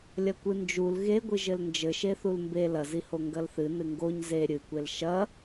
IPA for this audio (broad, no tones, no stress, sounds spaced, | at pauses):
lʲ ɐ kʷ ɨ n d͡ʒ u l ɣ e ɡʷ ɨ ʒ ɘ l n d͡ʒ ɘ ʃ e θ u l m b e l ɐ z i h o ŋ ɡ ɐ l θ ɨ n ɨ ŋ ɡ o ɲ z e ɾʲ ɨ kʷ e l ʃ ɐ